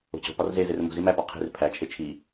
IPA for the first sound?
o̤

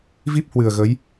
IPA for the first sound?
v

